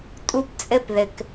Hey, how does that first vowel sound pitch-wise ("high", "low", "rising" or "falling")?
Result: high